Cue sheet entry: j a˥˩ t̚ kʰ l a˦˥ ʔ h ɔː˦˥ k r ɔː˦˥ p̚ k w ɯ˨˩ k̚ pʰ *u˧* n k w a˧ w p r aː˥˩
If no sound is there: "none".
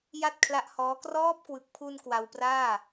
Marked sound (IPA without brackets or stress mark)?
u˧